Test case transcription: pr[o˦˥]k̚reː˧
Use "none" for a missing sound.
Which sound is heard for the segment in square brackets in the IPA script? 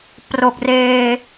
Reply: o˨˩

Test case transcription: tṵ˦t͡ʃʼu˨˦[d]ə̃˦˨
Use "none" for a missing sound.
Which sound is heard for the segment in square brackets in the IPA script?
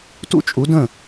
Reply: d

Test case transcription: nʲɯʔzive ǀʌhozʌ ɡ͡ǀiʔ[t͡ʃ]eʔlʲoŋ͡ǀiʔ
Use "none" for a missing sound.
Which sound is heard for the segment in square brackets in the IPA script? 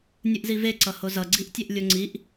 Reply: tʲ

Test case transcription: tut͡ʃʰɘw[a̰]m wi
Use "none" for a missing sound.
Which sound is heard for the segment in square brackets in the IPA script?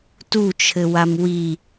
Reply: a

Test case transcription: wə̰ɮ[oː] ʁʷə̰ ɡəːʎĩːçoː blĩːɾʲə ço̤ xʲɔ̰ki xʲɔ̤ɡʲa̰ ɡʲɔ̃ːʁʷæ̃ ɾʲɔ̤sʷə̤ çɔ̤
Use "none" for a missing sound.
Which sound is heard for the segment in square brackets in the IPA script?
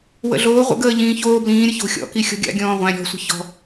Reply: oː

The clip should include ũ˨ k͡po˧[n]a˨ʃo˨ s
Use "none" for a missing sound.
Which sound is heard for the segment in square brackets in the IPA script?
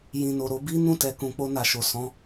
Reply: n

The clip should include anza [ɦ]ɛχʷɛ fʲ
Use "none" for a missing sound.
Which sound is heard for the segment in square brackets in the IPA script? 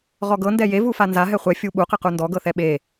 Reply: ɦ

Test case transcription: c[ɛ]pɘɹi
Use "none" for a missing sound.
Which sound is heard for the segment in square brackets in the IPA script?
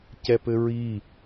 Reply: ɛ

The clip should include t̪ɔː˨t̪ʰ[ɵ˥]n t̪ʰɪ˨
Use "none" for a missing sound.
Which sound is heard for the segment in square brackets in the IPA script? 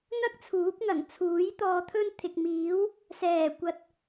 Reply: ɵ˧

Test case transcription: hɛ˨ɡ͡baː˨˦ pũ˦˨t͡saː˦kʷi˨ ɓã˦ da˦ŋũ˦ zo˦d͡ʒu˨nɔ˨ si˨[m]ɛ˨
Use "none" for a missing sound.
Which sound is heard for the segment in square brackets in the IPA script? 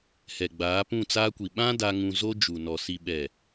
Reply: ɓ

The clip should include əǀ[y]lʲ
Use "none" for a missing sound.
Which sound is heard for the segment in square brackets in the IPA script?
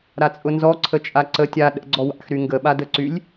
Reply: y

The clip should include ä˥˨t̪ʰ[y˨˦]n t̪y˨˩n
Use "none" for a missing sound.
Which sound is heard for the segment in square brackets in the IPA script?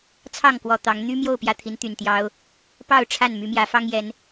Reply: i˨˦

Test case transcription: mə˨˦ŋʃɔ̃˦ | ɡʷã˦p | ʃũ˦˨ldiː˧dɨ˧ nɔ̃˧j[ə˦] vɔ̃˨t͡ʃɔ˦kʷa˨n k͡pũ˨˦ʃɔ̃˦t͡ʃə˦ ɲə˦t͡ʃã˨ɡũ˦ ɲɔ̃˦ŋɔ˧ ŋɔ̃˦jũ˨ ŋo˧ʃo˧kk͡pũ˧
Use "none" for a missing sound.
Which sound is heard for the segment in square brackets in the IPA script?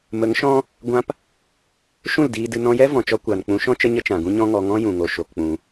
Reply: ɛ˦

